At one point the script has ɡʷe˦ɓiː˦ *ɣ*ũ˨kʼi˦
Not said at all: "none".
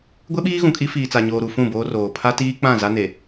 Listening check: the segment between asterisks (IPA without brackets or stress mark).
ɣ